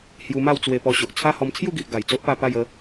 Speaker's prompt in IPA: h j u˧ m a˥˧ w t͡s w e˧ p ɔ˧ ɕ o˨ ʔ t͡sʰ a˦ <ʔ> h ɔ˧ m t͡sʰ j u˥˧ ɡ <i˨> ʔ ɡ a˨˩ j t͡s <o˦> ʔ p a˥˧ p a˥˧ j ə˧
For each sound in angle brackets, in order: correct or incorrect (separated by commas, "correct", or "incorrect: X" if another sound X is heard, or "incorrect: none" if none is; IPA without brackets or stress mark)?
incorrect: none, correct, correct